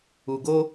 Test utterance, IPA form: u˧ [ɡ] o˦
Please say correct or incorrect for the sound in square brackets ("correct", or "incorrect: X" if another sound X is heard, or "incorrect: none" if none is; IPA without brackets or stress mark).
correct